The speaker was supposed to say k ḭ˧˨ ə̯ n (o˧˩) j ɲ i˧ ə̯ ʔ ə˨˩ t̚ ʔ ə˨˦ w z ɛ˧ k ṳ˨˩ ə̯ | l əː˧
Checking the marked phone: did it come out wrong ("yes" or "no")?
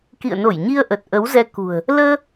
no